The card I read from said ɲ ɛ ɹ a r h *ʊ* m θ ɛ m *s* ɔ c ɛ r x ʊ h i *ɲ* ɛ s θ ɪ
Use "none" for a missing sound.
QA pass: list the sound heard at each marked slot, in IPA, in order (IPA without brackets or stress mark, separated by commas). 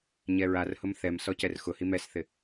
ʊ, s, m